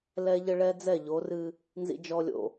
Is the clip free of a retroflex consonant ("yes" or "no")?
no